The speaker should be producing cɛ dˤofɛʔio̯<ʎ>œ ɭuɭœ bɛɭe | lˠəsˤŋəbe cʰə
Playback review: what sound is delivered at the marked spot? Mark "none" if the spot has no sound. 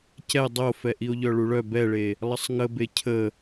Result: ʎ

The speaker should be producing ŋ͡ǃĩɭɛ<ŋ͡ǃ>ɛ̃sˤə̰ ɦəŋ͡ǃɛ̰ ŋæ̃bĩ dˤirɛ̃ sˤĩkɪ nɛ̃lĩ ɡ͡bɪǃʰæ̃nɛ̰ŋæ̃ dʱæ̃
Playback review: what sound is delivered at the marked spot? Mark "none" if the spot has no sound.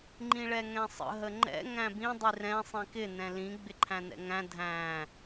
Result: ŋ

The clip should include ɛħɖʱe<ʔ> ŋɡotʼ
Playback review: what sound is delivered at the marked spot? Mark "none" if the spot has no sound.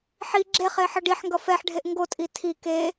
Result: ʔ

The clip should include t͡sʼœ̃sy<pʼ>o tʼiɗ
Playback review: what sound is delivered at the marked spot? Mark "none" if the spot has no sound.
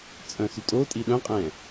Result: tʼ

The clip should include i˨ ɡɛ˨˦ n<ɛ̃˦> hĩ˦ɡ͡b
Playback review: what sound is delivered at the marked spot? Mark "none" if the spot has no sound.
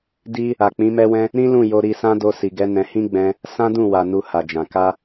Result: ɛ̃˧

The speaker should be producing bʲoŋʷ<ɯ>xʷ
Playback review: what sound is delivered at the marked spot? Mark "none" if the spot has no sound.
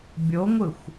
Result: ɯ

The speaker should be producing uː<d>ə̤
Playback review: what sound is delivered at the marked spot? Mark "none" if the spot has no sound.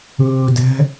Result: d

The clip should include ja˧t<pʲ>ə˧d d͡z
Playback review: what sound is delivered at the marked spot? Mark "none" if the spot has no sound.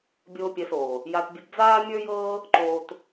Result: bʲ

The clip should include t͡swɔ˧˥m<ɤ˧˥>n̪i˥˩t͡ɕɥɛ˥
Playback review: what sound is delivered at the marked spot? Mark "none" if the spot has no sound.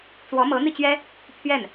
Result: ɤ˧˥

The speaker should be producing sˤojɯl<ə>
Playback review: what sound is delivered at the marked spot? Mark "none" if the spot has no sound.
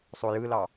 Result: ɑ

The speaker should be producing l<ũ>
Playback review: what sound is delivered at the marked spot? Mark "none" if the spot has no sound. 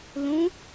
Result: ũ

